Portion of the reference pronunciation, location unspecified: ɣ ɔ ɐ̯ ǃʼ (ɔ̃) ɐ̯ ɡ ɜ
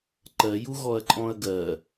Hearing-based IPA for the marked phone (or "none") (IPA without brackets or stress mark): ɔ̃